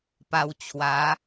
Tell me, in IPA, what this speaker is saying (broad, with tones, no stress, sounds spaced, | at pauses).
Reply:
p a˧ w t͡ɕʰ w a˨˦